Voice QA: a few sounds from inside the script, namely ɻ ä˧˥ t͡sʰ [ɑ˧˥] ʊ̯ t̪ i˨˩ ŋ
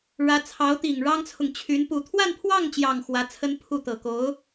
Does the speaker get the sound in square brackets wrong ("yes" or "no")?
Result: no